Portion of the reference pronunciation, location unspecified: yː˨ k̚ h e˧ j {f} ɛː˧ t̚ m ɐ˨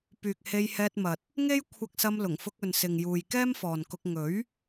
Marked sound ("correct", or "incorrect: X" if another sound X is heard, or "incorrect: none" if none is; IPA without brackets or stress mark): incorrect: h